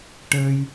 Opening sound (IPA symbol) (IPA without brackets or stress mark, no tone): ʈ